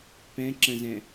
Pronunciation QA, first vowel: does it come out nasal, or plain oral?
nasal